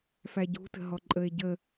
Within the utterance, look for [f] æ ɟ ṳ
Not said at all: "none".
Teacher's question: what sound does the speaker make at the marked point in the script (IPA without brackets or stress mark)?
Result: f